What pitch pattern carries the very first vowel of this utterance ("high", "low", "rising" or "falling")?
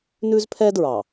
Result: high